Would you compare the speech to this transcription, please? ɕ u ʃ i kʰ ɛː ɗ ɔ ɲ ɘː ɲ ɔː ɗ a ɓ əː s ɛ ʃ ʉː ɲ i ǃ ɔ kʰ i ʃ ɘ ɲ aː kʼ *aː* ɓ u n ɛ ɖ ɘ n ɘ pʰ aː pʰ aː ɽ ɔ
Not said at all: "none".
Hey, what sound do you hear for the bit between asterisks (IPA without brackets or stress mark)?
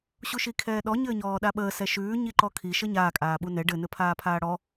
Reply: aː